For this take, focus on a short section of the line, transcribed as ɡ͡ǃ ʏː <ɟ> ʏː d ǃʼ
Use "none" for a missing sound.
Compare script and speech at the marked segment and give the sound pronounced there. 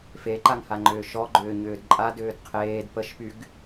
ɲ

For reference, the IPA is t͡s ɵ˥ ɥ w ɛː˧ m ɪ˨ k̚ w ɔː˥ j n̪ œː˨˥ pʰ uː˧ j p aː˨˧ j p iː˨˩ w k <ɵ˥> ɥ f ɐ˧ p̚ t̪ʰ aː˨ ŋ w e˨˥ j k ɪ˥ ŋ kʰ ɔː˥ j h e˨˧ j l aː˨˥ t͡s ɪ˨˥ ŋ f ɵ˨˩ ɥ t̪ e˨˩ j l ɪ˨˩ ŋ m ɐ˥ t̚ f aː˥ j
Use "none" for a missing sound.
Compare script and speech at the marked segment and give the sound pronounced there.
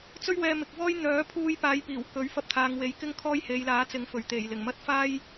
ɵ˨˥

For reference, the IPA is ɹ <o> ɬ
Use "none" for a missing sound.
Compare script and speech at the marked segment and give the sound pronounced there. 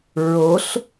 o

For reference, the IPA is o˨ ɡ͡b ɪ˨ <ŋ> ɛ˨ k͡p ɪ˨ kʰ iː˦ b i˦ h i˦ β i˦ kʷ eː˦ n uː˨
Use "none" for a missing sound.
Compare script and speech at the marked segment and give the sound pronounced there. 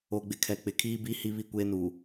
kʰ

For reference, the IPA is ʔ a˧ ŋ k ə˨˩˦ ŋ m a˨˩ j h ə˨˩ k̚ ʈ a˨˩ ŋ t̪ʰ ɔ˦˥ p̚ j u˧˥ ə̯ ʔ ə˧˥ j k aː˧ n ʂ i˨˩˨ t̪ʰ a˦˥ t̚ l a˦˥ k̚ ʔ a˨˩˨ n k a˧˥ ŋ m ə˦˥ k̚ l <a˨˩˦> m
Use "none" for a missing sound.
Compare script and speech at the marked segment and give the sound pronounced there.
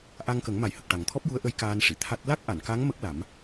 a˨˩˦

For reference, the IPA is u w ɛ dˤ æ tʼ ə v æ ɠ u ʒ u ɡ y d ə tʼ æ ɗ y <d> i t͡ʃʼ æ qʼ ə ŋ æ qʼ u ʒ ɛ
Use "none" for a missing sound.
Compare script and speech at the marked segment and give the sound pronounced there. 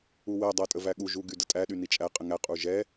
n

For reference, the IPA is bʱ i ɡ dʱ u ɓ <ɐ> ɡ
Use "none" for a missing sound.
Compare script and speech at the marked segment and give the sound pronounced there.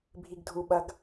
ɐ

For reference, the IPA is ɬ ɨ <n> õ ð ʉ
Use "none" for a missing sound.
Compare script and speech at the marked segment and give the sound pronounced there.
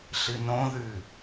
n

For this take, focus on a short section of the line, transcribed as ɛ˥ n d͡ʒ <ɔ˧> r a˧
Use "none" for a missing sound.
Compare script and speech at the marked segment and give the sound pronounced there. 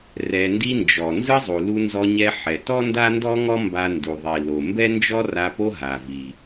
ɔ˥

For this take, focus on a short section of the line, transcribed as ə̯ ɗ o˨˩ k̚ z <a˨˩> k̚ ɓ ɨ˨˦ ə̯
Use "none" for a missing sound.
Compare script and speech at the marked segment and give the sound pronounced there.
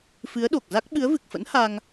a˦˥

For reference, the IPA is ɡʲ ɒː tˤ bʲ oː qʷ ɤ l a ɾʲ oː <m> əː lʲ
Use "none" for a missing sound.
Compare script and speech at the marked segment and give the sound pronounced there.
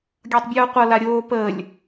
p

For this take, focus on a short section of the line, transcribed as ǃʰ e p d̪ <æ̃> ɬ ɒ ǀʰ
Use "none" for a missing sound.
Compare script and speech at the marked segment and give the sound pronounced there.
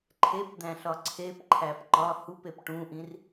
æ̃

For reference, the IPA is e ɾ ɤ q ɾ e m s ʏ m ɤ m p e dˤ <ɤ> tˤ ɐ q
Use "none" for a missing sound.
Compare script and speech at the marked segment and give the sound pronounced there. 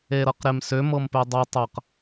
ɤ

